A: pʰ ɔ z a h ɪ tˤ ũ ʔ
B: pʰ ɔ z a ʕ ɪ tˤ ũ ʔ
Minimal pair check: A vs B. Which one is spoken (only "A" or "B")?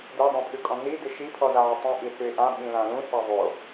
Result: B